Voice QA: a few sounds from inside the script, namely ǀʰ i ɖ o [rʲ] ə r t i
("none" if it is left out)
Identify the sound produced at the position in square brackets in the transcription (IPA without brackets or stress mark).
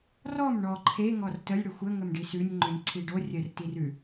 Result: rʲ